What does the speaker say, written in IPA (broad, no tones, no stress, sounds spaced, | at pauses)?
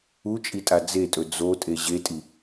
u t͡ʃʼ i tʼ a d͡z e tʼ ɵ d͡z o tʼ e ʑ e tʼ i